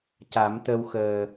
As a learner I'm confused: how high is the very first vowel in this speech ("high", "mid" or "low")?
low